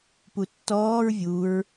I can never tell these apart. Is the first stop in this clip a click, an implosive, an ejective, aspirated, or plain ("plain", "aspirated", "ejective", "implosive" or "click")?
plain